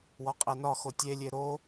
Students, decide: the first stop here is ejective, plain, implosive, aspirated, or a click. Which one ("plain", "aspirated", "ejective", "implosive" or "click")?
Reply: ejective